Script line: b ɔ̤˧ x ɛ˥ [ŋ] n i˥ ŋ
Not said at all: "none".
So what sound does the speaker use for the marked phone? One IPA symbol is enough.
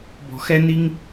none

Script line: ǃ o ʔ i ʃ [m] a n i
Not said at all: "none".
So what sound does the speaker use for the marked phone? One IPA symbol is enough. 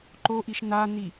n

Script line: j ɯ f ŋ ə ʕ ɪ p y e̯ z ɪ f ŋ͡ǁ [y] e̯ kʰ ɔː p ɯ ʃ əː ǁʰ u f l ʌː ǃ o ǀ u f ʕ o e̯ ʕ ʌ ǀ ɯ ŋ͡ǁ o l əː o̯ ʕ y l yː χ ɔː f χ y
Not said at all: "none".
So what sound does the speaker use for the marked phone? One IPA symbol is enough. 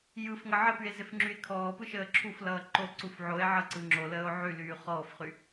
y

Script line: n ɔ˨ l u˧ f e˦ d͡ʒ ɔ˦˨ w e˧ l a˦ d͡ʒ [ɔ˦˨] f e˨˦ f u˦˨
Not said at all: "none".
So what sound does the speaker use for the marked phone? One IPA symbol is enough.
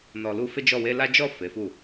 ɔ˦˨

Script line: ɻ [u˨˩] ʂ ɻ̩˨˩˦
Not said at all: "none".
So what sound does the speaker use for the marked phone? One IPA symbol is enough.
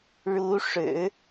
u˧˥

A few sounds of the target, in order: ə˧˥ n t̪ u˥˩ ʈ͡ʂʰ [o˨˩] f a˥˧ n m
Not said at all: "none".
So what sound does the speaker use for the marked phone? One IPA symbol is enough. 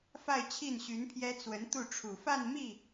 u˨˩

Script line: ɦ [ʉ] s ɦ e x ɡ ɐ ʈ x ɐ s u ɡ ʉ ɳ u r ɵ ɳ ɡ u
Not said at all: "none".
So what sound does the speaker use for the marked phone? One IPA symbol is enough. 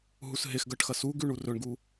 u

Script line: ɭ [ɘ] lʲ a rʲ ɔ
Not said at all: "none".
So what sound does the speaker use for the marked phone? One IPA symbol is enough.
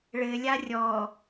ɘ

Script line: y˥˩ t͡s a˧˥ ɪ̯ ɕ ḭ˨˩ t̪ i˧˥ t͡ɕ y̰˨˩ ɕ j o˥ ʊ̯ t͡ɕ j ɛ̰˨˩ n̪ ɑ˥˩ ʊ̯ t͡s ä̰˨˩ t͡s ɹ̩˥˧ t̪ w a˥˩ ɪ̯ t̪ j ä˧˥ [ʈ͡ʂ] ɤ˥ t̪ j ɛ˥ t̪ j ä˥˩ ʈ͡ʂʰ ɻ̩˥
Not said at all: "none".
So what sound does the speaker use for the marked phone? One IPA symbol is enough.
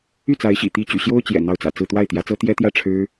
t͡s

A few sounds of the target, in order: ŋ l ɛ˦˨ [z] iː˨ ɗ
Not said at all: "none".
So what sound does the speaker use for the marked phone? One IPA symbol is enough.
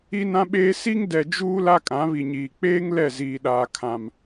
z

